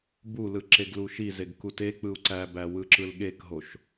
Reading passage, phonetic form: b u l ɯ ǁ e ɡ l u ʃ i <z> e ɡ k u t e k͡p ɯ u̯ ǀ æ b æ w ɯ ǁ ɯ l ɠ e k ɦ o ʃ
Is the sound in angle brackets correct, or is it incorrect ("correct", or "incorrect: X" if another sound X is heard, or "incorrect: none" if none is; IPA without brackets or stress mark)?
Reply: correct